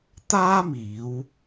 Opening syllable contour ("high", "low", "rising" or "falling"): high